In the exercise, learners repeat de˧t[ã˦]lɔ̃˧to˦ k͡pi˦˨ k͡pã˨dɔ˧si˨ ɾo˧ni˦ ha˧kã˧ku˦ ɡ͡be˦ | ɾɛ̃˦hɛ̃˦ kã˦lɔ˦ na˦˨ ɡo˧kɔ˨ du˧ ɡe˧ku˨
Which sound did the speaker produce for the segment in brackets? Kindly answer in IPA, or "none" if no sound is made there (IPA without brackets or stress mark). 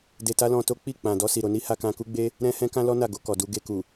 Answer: a˦